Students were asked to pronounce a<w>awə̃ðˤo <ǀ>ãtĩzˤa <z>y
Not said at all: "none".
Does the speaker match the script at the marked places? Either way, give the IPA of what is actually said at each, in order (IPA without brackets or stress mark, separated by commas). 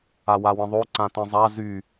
w, ǀ, z